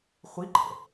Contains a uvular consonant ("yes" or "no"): yes